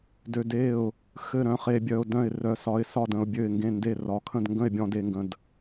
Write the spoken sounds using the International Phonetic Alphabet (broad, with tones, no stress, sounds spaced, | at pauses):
d ø˧ d e˥˩ ʊ̯ | x ɘ˥˩ ɾ œ̃˥˩ χ e˧ bʲ œ˧ ʊ̯ d œ̃˥˩ ɪ̯ r œ˧ s ɒ˧ ɪ̯ s ɒ˥˩ d ə̃˧ ʊ̯ bʲ ø˥˩ ɪ̯ ŋ ɡ ẽ˥˩ n d e˥˩ r ɒ˧ kʰ ə̃˥˩ d ŋ ɡ ə̃˥˩ ɪ̯ bʲ ɔ̃˧ d e˧ ŋ ɡ ə̃˧ d